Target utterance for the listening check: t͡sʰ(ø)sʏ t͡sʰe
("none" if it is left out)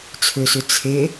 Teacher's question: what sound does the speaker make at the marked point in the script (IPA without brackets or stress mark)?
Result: ø